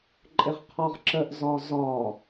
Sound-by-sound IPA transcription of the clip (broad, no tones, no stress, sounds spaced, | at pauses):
ǃʼ ɪ ʁ qʰ ɒ ʁ ǁ ə ʔ z ɒ z ɒ